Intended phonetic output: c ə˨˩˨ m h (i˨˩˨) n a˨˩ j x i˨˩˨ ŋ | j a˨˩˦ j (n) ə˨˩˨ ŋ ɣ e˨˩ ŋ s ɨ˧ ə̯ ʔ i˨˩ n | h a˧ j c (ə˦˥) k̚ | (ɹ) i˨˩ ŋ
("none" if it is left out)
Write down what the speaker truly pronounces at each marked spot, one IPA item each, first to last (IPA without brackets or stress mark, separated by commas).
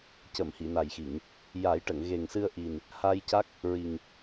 i˨˩˨, ʈ, a˦˥, ɹ